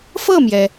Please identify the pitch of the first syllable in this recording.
falling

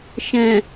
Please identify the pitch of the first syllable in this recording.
low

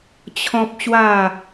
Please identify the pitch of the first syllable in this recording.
high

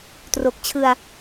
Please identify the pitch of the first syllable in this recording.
low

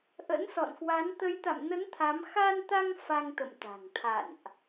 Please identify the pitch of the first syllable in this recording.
rising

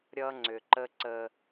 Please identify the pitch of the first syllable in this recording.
high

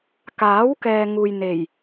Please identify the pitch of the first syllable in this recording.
rising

